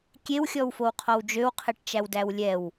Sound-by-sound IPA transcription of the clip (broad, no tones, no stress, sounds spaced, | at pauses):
kʲ e w xʲ ɔ w f o w qʰ ɔ w d͡ʒ ø w qʰ e ʈ t͡ʃ æ w d æ w lʲ ɛ w